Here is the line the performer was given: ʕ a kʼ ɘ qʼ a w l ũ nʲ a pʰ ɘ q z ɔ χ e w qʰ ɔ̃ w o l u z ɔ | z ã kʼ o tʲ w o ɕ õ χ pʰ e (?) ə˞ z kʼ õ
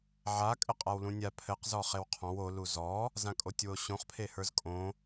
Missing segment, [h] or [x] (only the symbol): h